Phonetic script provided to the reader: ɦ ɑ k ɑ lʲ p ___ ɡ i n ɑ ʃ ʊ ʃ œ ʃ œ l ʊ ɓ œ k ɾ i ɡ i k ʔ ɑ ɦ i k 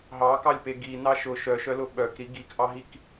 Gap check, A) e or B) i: A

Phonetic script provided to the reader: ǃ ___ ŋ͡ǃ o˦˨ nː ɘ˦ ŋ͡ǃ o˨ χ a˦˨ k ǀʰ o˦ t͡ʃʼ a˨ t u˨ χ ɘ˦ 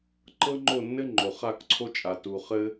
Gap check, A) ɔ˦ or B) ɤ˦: B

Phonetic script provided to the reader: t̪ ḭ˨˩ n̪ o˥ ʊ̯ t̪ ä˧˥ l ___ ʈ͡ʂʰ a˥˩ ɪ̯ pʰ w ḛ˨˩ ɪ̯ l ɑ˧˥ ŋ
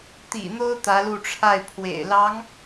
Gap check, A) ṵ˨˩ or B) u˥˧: B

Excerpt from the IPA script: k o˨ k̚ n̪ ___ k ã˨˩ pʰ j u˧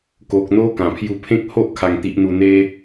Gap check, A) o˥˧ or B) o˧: B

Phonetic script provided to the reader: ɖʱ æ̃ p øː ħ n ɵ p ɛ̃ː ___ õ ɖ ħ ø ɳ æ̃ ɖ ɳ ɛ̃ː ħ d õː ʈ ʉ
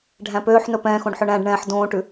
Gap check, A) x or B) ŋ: A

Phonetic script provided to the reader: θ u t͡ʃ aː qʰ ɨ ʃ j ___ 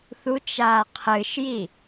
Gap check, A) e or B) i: B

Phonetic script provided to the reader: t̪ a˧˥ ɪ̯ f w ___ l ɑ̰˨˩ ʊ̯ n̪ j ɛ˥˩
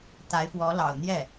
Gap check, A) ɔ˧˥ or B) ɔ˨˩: A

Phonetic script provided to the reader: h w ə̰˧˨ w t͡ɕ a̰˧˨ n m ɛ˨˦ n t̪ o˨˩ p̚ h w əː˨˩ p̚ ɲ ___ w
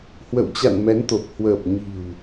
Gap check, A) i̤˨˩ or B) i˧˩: A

